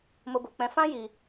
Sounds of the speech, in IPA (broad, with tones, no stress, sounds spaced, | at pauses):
m o˦ b o˧ k͡p ɛ̃˦ f ã˦ j i˧